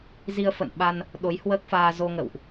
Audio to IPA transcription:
z i˧ ə̯ f ə̰˧˨ n ɓ a˧ n | ɗ o˨˦ j h w əː˦˥ k̚ f aː˧ z o˧ ŋ ə̰˧˨ w ʔ

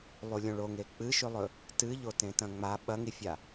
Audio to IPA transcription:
lˠ u lʲ õ ɭ o ŋ e k͡p ɨ ʃ ʉ lˠ ɵ | t ɨ ʎ o t ẽ t ɐ̃ ŋ͡m a ɓ ɐ ŋ i fʲ a

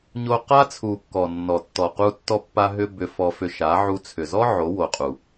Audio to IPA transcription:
ɲ o˧ q a˦ t͡sʰ u˨ kː ɔ˨ nː ɔ˨ tː ɔ˨ q u˦ tː ɔ˧ pː a˧ ɦ ʏ˧ b ʏ˧ f ɔ˧ f ʏ˧ ʃ a˨˦ ʕ u˧ t͡sʰ ʏ˨ z ɔ˦ ʕ o˨˦ w o˨ qʼ u˨

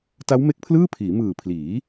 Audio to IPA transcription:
t a˦˥ w m e˦˥ k̚ pʰ l ɯː˥˩ pʰ iː˩˦ m ɯː˨˩ pʰ l iː˩˦

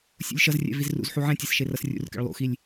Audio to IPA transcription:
sʲ ṵ lʲ ʃ ʌ z rʲ ɛ̰ v i z r ṵ z ħ u ʕ ɛ̃ tʲ e s ʃ e r ʌ s rʲ ṵ r k ɛ̰ ɭ lˠ ṵ x i lʲ

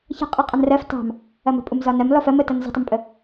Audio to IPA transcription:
ç ə̤ qʼ i qʼ ɐ n r ɜ f t ɑ̤ m | ɐ m ə̤ pʼ u m z ɒ n ɜ m l ɔ f ɜ m ə t ɐ n z ə̤ tˤ ə m pʼ ə

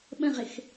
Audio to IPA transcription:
ɓ ə̃ ʁ ɪ x

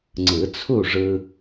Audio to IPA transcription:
ŋ͡ǀ ɯ˨˩˦ t͡sʰ u˥˨ ʐ ɯ˧

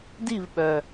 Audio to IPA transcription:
d i˦˨ v ɓ œ˩

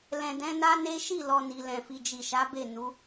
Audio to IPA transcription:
l ɛ̃˨ d ɛ̃˨˦ n a˦ n e˦ ʃ i˦˨ l ɔ˨ n i˨ l ɛ̃˨ f i˨ d͡ʒ i˨ ʃ a˨˦ b e˦˨ n u˨˦

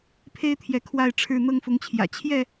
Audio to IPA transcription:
pʰ e˦ ɪ̯ t̪ʰ j ɛ˨˦ kʰ w a˥˨ ɪ̯ ʈ͡ʂʰ ɻ̩˥˨ n̪ ɤ˦ ŋ f ʊ˨˦ ŋ t͡ɕʰ j ä̰˨˩ t͡ɕʰ j ɛ˥˨

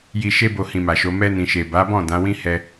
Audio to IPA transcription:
j i˨ ʃ e˧ b o˧ h ĩ˨ m a˨ ʃ o˨˦ m ɛ˧ n ĩ˨ ʃ e˨ b a˨˦ b ɔ̃˦˨ d ã˨˦ w ĩ˦ h ɛ˦

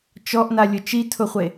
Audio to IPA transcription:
t͡ʃ ɔ ʔ n a lʲ ʊ t͡ʃ i tʰ ʊ χʷ e

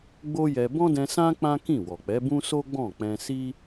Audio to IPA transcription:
ɡ͡b o˦ j ɛ˧ b ɔ̃˦ d ɛ̃˧ s ã˦ k͡p ã˦ k ĩ˦˨ w ɔ˨ k͡p ɛ˨˦ b ũ˦ s o˦ ɡ͡b ɔ̃˦˨ k͡p ɛ̃˧ s i˦

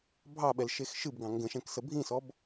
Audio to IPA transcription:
bʱ ɑ ɓ ɛ l ʃ e x ʃ ɨ b ɡ ɑ̃ ŋ ɡ ə̃ ʃ ɛ̃ k s ə bʱ ĩ s ɔ b

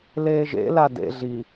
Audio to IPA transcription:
l eː ʒ ḛ l a d ḛ ɮ i

